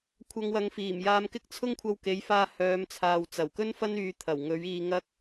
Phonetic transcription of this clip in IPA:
kʷʰ ɐ˧ ŋ w ɐ˨˧ ŋ f iː˨˩ m j aː˧ m k ɪ˥ k̚ t͡sʰ ʊ˥ ŋ kʷʰ ɐ˧ w k e˨˥ j f aː˧ h œː˨˧ m t͡sʰ aː˨ w t͡s ɐ˨˩ w k ɵ˥ n f ɐ˥ n yː˧ t̪ʰ ɐ˨˩ w ŋ ɵ˨˥ ɥ iː˧ ŋ ɐ˥ k̚

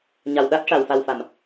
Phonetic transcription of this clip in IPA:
ɲ a˨˩ w ɗ a˦˥ t̚ ʂ a˨˩ w f a˨˩ w f a˨˩˨ m

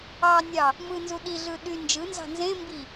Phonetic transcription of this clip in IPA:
ɑ nʲ ɑ | m ɯ n z u ɗ i ɮ ɯ ɗ y n d͡ʒ ɯ n z ɑ̤ n z ẽ m b i

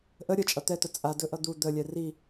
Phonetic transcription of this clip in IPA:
ʔ ə ɾʲ ə t͡ʃʼ ʌ t̪ ɛ t̪ ə t͡sʼ a d ɵ ʔ ʌ d̪ u d̪ ə lʲ ɛ r i

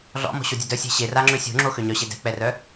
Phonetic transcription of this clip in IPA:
ɮ ɔ̰ m ɔ̤ ɕ o dʲ œ d œ sʲ ɛ̤ ɕ e r a ŋ͡ǁ ø sʲ o̤ ŋ͡ǁ o x ø ɲ œ ɕ e d ɛ̤ k͡p ɛ r œ

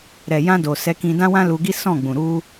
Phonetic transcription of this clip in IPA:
ɾ ɛ˨ j ã˧ d o˨ s ɛ˨˦ k ĩ˧ d ã˦ w ã˦ l u˧ ɡ i˦ s ɔ̃˦˨ ɡ͡b ũ˨ ɾ u˧

